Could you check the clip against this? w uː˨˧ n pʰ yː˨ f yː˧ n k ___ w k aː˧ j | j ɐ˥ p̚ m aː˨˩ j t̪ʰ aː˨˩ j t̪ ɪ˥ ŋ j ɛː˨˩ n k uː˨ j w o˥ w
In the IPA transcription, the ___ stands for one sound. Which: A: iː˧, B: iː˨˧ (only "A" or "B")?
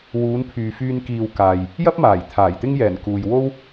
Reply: A